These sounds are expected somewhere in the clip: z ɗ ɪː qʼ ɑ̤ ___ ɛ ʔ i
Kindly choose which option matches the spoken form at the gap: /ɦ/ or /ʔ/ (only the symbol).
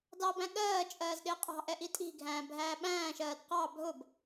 ʔ